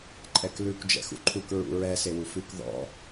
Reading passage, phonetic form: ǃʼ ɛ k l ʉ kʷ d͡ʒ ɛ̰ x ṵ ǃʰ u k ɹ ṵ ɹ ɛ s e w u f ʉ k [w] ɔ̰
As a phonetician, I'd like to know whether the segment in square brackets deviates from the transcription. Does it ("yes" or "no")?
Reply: yes